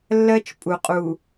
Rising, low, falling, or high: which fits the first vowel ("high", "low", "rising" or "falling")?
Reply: high